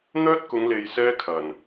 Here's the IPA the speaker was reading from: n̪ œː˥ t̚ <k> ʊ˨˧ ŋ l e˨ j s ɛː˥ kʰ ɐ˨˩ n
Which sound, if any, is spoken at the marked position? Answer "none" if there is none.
k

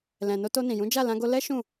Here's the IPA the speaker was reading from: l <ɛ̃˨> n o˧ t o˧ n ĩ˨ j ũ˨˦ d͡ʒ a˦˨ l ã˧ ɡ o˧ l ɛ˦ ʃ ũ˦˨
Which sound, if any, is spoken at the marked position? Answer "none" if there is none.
ɛ̃˨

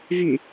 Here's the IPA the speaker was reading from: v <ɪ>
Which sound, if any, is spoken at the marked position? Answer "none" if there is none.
y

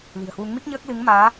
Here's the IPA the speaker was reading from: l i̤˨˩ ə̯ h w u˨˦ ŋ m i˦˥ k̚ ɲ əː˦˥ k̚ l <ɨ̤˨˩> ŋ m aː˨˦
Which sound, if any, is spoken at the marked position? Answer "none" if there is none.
ɨ˨˦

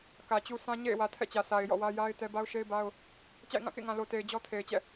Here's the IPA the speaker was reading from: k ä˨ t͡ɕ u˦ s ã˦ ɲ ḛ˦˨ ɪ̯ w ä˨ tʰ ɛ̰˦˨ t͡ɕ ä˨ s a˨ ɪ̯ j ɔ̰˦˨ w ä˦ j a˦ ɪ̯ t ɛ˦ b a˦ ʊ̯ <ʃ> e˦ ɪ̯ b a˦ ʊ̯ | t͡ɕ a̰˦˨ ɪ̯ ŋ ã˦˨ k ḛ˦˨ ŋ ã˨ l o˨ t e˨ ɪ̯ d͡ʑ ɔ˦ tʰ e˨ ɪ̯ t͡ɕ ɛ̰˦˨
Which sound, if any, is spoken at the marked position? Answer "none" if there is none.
ʃ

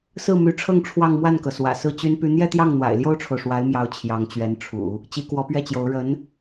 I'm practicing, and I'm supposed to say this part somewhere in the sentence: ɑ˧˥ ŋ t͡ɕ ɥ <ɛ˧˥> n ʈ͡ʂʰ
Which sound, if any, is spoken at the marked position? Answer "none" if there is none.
ɛ˧˥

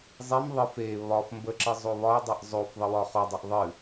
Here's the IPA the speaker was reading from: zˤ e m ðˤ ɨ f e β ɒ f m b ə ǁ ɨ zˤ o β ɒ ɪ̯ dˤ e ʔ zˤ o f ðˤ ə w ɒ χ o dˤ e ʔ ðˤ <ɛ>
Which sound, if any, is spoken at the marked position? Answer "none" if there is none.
ɨ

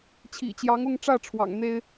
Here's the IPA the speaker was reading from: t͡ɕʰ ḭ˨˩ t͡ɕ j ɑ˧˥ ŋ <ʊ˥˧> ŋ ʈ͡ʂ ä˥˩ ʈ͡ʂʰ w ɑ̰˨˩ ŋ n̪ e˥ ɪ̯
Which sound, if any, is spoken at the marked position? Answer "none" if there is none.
ʊ˥˧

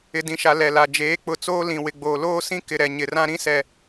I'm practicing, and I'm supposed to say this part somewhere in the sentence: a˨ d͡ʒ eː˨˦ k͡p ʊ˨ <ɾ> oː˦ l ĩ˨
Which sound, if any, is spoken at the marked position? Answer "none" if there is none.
t͡s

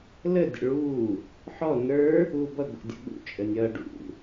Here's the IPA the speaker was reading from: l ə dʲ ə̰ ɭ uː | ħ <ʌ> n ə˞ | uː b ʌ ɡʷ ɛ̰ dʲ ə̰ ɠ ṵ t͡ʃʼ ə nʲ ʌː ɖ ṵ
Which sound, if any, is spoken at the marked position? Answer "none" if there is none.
ɔ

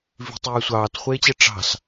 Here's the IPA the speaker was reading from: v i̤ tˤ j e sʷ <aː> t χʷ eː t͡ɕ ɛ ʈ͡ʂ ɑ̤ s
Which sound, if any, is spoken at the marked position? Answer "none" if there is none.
ɑː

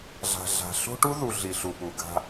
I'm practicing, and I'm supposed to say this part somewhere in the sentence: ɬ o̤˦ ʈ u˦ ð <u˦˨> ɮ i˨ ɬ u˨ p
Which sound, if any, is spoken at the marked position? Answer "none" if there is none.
u˨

